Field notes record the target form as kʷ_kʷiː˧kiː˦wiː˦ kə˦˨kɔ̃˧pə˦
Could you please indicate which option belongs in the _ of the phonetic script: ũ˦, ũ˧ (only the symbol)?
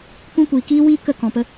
ũ˦